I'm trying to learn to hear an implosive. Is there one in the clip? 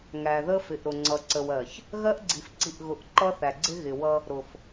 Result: no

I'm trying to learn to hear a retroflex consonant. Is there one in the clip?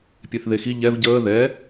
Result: no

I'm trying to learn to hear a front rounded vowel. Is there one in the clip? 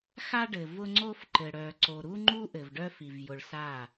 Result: yes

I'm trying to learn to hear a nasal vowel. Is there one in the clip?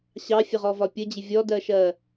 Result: no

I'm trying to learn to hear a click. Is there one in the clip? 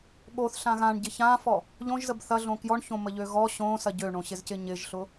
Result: no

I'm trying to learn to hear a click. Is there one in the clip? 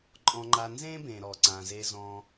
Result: yes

